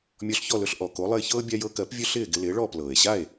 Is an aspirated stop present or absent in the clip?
absent